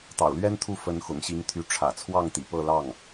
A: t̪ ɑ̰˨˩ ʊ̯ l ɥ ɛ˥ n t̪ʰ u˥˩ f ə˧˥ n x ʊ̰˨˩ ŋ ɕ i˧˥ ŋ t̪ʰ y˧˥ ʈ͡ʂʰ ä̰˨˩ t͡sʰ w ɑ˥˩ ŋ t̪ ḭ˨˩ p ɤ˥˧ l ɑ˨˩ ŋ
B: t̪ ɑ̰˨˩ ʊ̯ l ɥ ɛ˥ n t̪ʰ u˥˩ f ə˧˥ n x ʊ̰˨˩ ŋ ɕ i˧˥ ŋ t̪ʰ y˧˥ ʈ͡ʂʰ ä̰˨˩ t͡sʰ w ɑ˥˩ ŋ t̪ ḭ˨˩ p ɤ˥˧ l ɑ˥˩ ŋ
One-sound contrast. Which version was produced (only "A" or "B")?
B